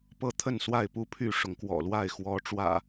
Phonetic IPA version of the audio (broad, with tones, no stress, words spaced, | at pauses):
pɤ˥˨t̪ʰə˥˨nswa˥˨ɪ̯ pu˦pʰy˥˨ʂʊ˨˦ŋ kwɔ̰˨˩lwa˥˨ɪ̯ xwɔ˨˦ ʈ͡ʂwä̰˨˩